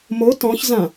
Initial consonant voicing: voiced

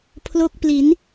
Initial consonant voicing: voiceless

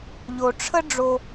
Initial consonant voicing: voiced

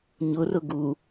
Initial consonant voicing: voiced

